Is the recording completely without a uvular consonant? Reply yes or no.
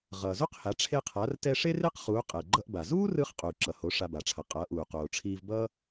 no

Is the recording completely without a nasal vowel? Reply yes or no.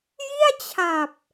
yes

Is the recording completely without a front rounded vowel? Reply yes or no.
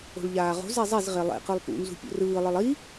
yes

